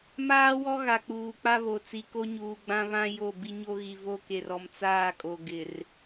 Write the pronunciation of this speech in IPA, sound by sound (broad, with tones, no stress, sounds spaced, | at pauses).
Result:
m aː˦ w ɔ˦ ɣ a˨ k͡p uː˨ k͡p a˦ β o˨ t͡s i˨ k o˦ ɲ uː˨ ɡ͡b ã˦ β ã˦ j o˦˨ b i˦ ɲ o˦ ɣ i˨ v o˦ k e˨ r ɔ˨ m t͡s aː˦˨ kʼ o˨ ɡ ɪ˨ r